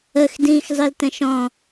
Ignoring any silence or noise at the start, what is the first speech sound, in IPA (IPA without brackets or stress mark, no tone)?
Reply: ə